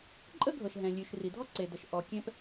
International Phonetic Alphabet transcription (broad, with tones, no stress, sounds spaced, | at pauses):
ǃʼ ə˥ ɡʱ ɤ˩ ʃ ɦ ɛ̃˩ lʲ ʉ˩ ʃ r i˩ dʱ ɔ˥ ǀ e˩ d ə˩ ʃ ʔ ɔ˩ kʲ ɛ̃˥ p